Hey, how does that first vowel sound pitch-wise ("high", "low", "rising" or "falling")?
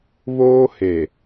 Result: high